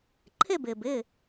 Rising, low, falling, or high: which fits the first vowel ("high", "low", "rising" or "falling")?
falling